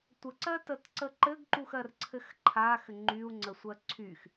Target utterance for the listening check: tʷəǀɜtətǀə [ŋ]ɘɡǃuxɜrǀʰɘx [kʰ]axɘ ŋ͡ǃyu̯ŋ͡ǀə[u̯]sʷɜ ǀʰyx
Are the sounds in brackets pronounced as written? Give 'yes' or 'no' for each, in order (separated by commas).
no, no, no